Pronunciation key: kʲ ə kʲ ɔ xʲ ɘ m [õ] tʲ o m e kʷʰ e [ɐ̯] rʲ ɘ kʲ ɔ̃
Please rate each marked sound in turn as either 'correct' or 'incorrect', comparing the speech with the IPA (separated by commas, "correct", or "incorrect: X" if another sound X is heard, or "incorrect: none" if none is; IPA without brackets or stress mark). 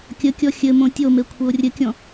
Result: correct, incorrect: o̯